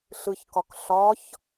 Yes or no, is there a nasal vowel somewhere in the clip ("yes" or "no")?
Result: no